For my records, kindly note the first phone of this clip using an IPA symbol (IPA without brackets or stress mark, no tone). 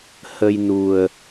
h